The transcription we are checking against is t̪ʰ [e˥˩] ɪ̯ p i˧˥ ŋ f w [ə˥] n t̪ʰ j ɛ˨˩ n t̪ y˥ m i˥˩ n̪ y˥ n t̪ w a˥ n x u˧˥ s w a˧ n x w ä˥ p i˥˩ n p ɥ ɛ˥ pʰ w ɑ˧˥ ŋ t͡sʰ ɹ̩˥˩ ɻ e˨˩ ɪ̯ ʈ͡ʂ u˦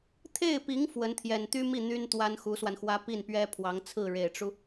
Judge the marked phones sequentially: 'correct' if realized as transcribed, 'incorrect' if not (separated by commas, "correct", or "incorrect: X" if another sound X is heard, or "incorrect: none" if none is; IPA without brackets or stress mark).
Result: correct, incorrect: ə˧˥